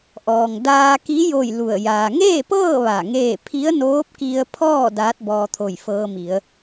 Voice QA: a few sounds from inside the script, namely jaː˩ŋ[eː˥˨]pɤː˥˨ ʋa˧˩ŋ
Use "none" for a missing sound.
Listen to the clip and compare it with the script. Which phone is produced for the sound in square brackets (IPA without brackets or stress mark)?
eː˥˨